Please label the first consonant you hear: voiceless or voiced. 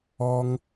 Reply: voiced